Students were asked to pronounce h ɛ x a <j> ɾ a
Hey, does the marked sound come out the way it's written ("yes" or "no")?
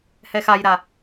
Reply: yes